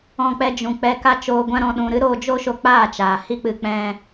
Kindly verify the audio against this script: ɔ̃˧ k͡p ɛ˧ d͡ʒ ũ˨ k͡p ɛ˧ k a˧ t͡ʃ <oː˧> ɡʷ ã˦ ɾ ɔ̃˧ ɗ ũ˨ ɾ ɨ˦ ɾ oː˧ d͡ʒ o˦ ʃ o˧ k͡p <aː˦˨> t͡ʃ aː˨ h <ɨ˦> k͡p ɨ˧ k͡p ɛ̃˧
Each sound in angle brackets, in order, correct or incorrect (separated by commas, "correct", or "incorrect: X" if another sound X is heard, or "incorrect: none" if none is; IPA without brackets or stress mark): correct, correct, incorrect: i˦